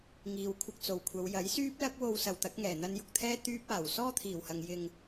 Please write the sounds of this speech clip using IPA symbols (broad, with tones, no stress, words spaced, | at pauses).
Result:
ŋiː˨wkʷʰɪ˧k̚t͡so˨˩wkʷʰɐ˨˧w jɐ˨˥jsyː˥p̚ lɐ˥k̚wo˧w sɐ˨wt̪ɐ˨˥k̚ŋɛː˨˩ n̪ɐ˧njʊ˨k̚t̪ʰɛː˥ t̪yː˥p̚aː˨˩w sɔː˥t̪ʰiː˨˩whɐ˨ŋ jɪ˨ŋ